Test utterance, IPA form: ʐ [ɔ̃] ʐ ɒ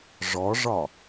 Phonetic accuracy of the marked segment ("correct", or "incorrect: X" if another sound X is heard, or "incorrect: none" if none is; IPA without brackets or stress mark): incorrect: ɔ